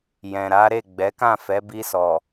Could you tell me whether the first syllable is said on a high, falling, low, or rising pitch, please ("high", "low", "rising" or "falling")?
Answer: low